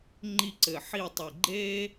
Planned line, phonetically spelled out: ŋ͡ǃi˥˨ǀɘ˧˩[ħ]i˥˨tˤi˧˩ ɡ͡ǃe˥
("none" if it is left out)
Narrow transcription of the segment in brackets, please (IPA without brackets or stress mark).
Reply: ħ